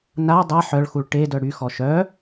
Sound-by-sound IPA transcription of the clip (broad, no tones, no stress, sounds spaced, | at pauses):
n a dˤ a ħ œ ɭ x u ɭ ʈ e d œ ɽ y x ɔ ʃ œ